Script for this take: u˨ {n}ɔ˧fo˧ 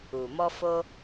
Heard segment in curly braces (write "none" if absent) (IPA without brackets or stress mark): m